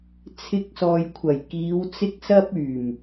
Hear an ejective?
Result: no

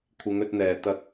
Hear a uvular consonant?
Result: no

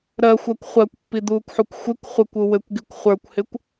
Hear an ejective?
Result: no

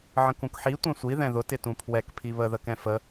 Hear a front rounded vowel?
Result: no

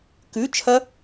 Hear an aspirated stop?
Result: yes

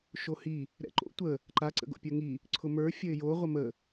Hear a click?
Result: yes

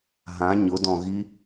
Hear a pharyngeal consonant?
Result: no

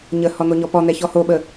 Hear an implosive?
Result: yes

